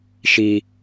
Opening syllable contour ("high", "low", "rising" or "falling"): high